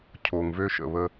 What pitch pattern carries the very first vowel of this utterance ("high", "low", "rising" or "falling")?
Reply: low